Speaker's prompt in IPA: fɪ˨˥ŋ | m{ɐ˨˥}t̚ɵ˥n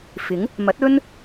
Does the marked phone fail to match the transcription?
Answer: no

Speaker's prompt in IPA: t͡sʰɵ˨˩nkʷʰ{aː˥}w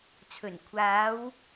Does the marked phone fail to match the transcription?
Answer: yes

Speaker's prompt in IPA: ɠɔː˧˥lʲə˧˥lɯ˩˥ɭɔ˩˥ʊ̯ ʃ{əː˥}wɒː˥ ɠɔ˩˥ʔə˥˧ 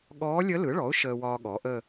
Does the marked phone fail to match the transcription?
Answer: no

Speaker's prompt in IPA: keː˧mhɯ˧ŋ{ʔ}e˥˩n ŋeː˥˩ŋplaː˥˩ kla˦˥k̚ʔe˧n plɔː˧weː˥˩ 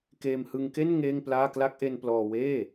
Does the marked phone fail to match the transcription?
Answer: yes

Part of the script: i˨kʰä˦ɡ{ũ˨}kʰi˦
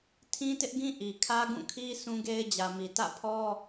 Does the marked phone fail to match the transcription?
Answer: yes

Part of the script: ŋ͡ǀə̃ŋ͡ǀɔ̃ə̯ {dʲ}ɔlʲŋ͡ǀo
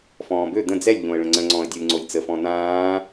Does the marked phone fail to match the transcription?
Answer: no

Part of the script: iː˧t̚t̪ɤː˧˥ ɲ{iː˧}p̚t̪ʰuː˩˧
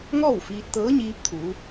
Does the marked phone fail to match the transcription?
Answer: yes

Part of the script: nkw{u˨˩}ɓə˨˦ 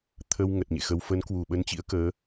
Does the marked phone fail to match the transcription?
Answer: yes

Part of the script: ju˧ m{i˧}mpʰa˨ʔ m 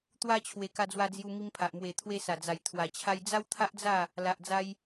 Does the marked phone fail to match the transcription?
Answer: no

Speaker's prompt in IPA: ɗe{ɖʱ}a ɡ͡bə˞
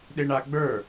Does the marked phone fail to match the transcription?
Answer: yes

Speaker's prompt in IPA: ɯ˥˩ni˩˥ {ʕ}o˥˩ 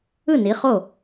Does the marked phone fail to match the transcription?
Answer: yes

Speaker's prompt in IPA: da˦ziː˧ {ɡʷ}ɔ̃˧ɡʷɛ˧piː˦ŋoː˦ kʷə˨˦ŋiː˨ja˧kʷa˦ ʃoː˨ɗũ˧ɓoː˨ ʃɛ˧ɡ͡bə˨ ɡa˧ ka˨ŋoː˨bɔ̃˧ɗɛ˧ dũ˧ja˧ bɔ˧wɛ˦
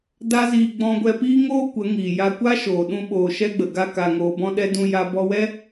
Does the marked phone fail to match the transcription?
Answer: yes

